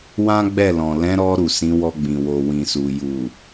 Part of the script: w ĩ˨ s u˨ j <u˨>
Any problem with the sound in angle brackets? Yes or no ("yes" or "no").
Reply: no